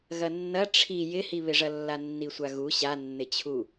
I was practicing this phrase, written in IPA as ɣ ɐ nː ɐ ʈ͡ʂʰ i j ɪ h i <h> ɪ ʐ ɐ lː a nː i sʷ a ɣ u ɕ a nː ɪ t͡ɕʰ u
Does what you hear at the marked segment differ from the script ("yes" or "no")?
yes